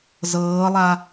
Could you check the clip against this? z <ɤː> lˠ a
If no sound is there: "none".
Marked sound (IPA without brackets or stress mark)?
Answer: ɤː